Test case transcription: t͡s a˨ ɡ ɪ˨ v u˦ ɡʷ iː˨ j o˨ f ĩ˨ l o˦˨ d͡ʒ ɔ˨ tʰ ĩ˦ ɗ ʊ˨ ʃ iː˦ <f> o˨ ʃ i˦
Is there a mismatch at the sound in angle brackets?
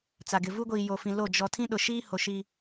yes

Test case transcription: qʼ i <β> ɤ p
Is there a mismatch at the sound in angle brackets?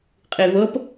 no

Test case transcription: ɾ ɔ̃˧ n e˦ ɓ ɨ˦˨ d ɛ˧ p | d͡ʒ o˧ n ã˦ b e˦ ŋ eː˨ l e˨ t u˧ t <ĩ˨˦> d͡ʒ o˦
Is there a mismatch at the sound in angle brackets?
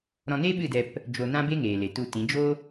no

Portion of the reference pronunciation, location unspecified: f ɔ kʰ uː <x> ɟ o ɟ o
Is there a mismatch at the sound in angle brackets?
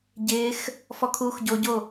no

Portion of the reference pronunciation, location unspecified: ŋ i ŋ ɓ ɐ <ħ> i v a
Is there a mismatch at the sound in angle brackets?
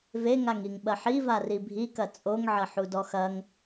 no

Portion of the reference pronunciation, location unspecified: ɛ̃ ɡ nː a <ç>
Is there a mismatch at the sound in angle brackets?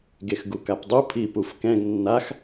yes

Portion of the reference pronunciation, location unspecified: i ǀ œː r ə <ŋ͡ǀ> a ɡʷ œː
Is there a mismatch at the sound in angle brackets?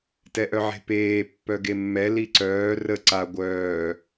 yes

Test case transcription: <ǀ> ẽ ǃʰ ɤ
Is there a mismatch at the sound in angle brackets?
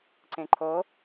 no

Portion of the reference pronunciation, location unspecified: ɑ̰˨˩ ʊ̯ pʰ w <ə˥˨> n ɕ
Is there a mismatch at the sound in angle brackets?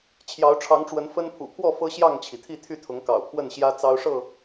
no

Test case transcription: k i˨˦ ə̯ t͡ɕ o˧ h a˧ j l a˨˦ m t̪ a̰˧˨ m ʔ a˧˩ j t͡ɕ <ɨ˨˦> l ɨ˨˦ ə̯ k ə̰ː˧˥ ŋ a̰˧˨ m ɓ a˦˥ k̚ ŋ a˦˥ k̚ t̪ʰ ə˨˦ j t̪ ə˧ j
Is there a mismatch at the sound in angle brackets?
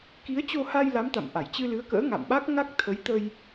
yes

